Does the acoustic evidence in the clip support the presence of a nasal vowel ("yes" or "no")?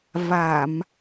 no